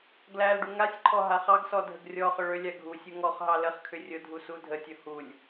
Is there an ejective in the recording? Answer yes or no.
no